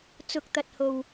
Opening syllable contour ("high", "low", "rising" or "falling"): low